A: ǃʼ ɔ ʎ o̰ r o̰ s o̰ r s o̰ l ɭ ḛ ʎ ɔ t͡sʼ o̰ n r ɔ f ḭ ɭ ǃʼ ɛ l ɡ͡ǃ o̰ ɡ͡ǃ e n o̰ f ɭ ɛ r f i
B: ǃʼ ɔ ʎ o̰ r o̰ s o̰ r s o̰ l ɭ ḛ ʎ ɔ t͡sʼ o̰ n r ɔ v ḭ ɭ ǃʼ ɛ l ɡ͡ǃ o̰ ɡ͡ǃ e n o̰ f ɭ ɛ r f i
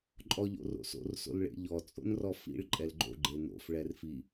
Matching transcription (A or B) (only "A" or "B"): A